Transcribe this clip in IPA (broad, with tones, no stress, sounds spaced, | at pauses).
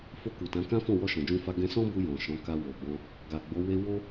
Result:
f o˧ k u˨ t ã˨˦ k ã˦ f ɔ̃˦˨ w ɔ˧ ʃ ɔ̃˨ d͡ʒ ũ˧ f a˧ ɡ ɛ̃˧ s ɔ̃˦ b u˧ j ɔ̃˨ ʃ ɔ̃˨˦ k a˧ w o˨ b ɔ̃˧ | ɡ a˨ ɡ͡b o˨˦ w e˧ w o˦